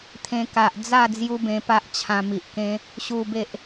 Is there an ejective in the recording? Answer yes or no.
no